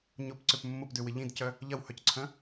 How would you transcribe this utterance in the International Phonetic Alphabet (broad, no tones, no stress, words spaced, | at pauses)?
ɲʊpǀøp mːʊpdøwɪ ʎĩdcœ | ʎɐwhœcǀʰœ̃